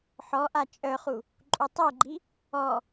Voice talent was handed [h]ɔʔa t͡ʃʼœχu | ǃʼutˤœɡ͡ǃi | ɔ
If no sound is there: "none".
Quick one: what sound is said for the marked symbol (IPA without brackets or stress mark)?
ħ